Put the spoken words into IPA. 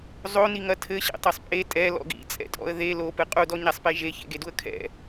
zˤ o n i ŋ ɐ tʰ ɘ ɕ ɛ̰ tˤ e sˤ pʼ e tʼ ɛ l ɔ̰ ɡ ḭ t͡sʼ ɛ̰ tʼ ɔ̰ ə̯ ð e l o p ɨ qʼ u d ɔ ɲ a sˤ p e ʒ e ç ḛ ɡ e d u ə̯ kʰ ɛ̰

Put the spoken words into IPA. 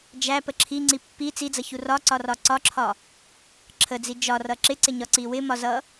d͡ʒ æ p ə ǁʰ i ŋ͡ǀ i pː i t͡s i d͡z ʌ ç u r ɒ ǀ ɒ r ɒ ǀ ɒ ǁʰ ɒ | ǁʰ ə d͡z i d͡ʒ ɒ r ʌ ǁ ɪ ǀ ɪ ɲ ɒ ǀ i w ɪ m ɒ z ʌ

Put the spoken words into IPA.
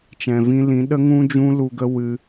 t͡ʃ ɛ̃˨ v ĩ˧ l ĩ˨˦ ɗ ə˦ ŋ ũ˦ d͡ʒ ũ˦ l u˧ ɡ ə˦ w ɨ˧

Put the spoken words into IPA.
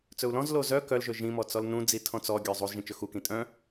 t͡s ɵ u̯ l ɔ̃ z l o z œ k œ l ʒ ɵ ʒ ĩ m ɔ t͡s ɔ l n ũ d͡z i tʰ ɔ̃ t͡s ɔ ɡʲ œ zˤ u z ʒ ĩ t͡ʃ ɵ x u k ĩ tʼ œ̃

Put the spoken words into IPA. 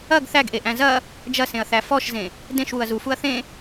ɐ ɡ θ æ ɡ ʔ e ʔ æ̃ z ɐ | d͡ʒ ɐ s ẽ ɐ̯ θ æ f ɔ ʃ z ẽ | d ẽ ʃ w u ɐ̯ z u f u ɐ̯ θ ẽ

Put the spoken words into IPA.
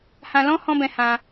h ã˧ l ɔ̃˦ h ɔ̃˦ b ɛ̃˧ h ã˧

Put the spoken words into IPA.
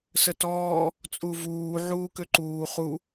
s ə t ɔː | t͡sʼ u v uː ʕ uː k ø ǃ uː χ u

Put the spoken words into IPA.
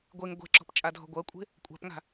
ɡʷ e ŋ ɡʷ e̤ ǁ ɔ̤ p t͡ʃʼ a dʱ ɔ̤ ɡʷ ɐ kʷʼ e̤ | kʷʼ a̤ p ŋ a̤

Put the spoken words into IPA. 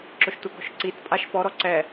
ǁ ʊ ʃ tʷ ə ɡ ɔ̤ ʃ ǀ i t pʼ a ʃ p ɔ ɾ ɔ ǀ ɛ

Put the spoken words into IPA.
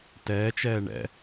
t ɛː t͡ʃ ɛː ɳ ɛ̰

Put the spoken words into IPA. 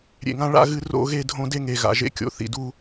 ɾʲ ḛ˧˩ ŋ ã˥ ɭ a̰˥˧ ɣ ɨ˥˧ r o̰˥˧ ɣ e˥˧ dʱ õ˥ d e˥ ŋ e˧˩ ɣ a̰˧˩ ʒ ḛ˥ kʲ o̰˧˩ θ ḭ˧˩ d u˥˧

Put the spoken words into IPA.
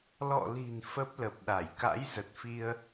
l ɔ̰˧˨ l i̤˨˩ n f ə˦˥ p̚ l ə˨˩ p̚ ɗ a˧˩ j k a̰˧˥ j z ə˨˩ t̚ f i˧ ə̯

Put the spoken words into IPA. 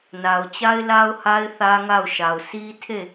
n a˨ ʊ̯ t͡ɕ a˦ ɪ̯ l a˦ ʊ̯ h a˦ ɪ̯ θ ä˦ ŋ a˦˨ ʊ̯ ʃ a˨ ʊ̯ sʰ i˦ tʰ e˦˨

